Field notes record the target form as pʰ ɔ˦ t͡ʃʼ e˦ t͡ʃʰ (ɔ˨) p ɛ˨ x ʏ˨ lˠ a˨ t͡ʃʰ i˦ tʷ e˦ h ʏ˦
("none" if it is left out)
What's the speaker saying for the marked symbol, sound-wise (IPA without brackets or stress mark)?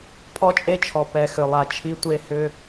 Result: ɔ˨